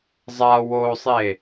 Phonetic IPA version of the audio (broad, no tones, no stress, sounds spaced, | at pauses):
zˤ a w o sˤ e